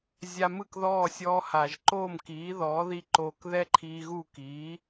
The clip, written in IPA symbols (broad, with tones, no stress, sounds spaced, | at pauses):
zʲ a˧ m ɯ˥˩ k ð ɔː˥˩ sʲ ɔː˧ h a˩ ʒ ǃ oː˥˩ m k iː˩˥ ð ɔː˩˥ ð i˥˩ ǃ oː˧ k ð ɛ˥ ǃʰ iː˧ ɣ u˥˩ k iː˩˥